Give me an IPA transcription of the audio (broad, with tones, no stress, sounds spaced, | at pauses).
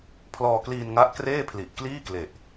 pʰ l ɔː˧ k l iː˧ n ŋ a˦˥ ʔ k r eː˥˩ pʰ l i˨˩ ʔ k l iː˥˩ k l e˨˩ ʔ